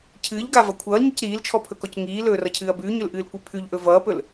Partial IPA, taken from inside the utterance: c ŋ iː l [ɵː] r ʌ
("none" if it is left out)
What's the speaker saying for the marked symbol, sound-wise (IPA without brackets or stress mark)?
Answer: ɵː